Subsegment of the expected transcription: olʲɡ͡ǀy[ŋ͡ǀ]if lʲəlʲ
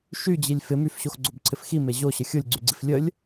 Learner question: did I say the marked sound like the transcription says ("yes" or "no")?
no